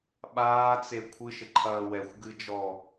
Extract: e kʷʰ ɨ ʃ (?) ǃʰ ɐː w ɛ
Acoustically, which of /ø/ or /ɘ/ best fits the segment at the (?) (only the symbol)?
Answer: ɘ